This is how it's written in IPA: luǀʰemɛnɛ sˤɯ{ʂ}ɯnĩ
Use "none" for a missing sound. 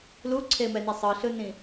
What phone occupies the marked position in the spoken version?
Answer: ɬ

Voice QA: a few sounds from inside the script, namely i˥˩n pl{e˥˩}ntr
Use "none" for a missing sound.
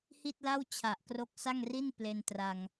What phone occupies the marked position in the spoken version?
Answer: e˧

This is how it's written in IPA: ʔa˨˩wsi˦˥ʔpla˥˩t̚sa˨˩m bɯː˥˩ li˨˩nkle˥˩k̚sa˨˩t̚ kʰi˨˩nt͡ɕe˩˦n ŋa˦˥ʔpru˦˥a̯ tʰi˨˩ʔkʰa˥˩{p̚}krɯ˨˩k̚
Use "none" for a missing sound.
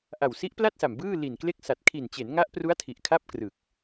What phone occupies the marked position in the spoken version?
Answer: p̚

